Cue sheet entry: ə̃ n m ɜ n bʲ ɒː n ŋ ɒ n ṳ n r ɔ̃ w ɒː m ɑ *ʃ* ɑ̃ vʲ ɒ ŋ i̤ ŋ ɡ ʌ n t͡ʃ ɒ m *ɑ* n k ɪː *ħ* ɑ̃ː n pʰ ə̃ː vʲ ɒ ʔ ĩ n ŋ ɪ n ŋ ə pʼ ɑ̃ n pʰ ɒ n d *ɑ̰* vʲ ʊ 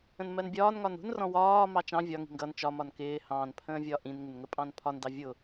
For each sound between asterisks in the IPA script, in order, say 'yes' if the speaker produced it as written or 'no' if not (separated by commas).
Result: no, no, no, no